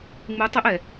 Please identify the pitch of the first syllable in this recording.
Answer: rising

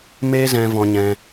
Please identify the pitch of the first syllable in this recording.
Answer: high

